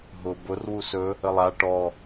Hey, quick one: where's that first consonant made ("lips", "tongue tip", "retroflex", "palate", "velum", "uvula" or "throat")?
throat